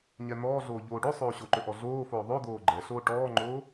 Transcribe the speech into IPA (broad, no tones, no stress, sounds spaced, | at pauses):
ɲ ɛ n̪ ɔː ɮ oː ʎ oː ɖ o sˤ oː ɕ o ǃ ɵ ʔ ɔ ɮ oː f oː ðˤ o d̪ oː ɡ͡ǃ ɛ ɬ oː ʈ ɔː ŋ͡ǃ oː